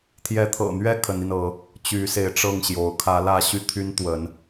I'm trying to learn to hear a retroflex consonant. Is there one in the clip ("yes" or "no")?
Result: yes